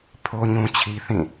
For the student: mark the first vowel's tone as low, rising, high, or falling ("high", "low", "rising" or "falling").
high